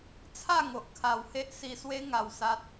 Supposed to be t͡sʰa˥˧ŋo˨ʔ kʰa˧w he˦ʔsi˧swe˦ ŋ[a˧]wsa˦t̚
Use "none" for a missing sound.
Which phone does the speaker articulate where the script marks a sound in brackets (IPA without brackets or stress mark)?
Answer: a˧